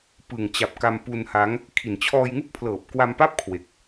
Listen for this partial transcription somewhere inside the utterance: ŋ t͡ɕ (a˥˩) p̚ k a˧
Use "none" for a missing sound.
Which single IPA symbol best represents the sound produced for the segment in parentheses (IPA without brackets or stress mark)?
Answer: a˨˩